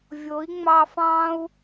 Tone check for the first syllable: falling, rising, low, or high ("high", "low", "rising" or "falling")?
rising